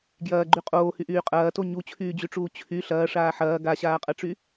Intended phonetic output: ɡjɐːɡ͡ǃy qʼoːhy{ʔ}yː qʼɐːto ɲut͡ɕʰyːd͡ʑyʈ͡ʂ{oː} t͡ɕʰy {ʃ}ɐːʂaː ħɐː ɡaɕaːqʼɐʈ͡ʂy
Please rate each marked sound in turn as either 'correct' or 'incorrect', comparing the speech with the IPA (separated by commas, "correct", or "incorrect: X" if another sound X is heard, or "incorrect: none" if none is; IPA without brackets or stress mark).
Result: correct, incorrect: uː, incorrect: ɬ